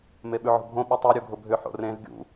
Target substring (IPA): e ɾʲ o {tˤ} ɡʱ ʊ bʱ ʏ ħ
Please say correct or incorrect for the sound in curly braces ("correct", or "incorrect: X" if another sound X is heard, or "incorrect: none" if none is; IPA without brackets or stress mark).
incorrect: none